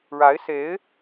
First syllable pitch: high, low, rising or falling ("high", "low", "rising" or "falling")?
rising